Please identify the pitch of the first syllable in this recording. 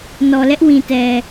low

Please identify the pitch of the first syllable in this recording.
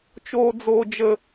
high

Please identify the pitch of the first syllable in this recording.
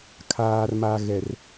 low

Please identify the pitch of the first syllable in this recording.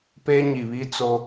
high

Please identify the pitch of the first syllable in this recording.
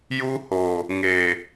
high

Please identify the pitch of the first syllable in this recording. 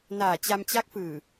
low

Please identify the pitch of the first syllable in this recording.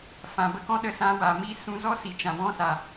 low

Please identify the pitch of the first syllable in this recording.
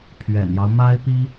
low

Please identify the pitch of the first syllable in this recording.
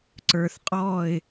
low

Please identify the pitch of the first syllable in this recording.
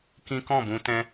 high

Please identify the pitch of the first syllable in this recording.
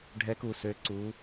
rising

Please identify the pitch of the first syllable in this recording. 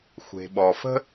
low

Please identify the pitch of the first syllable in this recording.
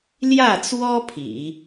falling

